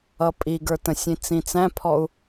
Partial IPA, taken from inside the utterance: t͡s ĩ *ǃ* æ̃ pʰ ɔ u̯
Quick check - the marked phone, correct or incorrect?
incorrect